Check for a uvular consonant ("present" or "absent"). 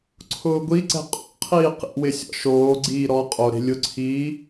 present